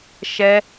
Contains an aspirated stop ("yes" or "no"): no